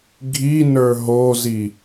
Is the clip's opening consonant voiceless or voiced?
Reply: voiced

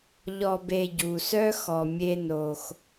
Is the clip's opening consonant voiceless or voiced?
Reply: voiced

